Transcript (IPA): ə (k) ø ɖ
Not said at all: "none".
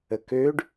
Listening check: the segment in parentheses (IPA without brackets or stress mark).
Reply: k